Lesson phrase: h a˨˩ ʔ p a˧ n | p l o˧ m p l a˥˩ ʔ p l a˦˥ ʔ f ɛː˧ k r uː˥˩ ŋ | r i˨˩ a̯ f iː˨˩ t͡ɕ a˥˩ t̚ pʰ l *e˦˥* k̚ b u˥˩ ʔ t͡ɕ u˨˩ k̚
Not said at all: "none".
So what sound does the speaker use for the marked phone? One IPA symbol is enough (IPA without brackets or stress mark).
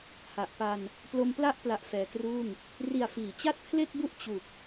e˥˩